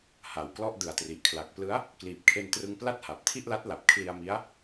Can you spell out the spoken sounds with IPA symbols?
h a˨˩ w k l ɔ˥˩ ʔ d ɯ˨˩ a̯ t r i˨˩ ʔ kʰ l a˨˩ k̚ p l ɯ˦˥ a̯ | k l iː˨˩ p̚ kʰ e˧ n t r ɯ˧ ŋ p l a˥˩ t̚ h a˨˩ p̚ tʰ i˥˩ ʔ l a˦˥ t̚ l a˨˩ p̚ kʰ l i˧ a̯ m i˦˥ a̯

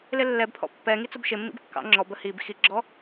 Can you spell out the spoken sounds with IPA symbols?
l ɪ lː ɛ b pʰ ɔ̰ pː ɛ ŋ i t͡s ʊ b ʃ ɪ mː ḭ b kː ɑ̰ ŋ͡ǁ ɔ b ə h i b x i ɡ͡ǁ ɔ

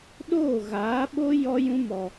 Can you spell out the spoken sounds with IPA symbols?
ɗ oː˦˨ ɣ aː˨˦ ɓ o˦ j ɔ˦ j ũ˦ m ɔ˧

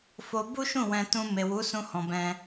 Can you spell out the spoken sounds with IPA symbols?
f o˧ b u˦ ʃ ũ˦˨ w ɛ̃˧ t ũ˧ m e˨ w u˨˦ s ũ˧ h ɔ̃˨ b ɛ̃˧

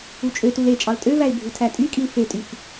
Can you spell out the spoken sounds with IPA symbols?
u t͡ʃʼ ø t u l e t͡ʃʼ ɑ l tʼ ø v æ ɪ̯ bʱ u tʰ æ tʼ y kʼ i l f e tʼ y f

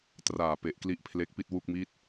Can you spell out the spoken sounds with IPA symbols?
t r aː˨˩ p e˨˩ ʔ k l i˦˥ ʔ pʰ l e˦˥ k̚ p i˥˩ t̚ w u˥˩ k̚ m i˥˩ t̚

